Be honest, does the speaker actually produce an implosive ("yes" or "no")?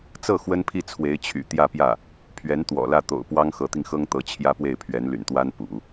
no